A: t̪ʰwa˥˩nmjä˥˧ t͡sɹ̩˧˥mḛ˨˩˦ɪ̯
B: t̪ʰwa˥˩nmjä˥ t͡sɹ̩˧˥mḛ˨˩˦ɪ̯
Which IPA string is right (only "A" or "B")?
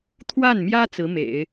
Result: B